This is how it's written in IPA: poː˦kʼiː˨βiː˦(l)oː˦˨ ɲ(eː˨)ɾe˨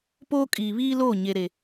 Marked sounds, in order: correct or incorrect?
correct, incorrect: e˨

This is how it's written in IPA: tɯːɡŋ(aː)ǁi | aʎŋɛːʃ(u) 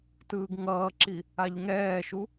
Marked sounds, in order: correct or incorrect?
incorrect: ʌː, correct

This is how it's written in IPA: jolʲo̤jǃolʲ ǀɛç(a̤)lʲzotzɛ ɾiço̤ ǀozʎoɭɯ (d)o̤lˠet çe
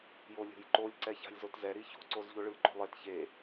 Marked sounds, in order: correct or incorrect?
correct, incorrect: ǃ

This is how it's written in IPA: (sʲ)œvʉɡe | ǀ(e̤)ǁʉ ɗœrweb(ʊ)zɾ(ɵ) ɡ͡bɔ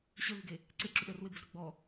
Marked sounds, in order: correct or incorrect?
incorrect: ɕ, incorrect: e, correct, incorrect: œ

